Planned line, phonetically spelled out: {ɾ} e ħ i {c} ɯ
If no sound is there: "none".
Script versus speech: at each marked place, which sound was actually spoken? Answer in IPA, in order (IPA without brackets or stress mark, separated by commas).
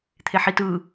t̪ʰ, t